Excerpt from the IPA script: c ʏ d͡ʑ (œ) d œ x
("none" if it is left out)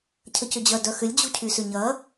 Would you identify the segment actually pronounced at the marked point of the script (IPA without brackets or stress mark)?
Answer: œ